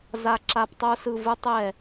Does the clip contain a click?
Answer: yes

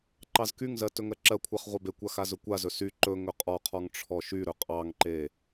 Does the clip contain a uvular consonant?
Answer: yes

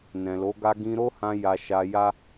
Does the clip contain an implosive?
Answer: no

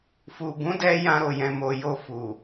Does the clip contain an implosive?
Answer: no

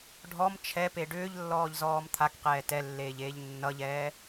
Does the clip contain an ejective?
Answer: no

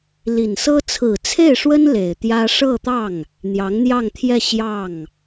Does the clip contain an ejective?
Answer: no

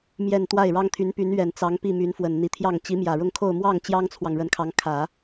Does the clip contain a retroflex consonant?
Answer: yes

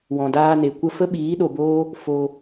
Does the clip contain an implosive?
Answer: yes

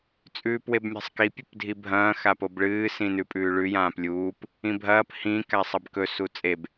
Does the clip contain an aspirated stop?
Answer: no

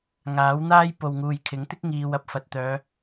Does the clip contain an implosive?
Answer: no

